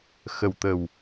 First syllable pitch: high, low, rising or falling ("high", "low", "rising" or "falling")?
low